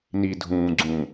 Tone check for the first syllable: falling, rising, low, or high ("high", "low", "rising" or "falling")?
low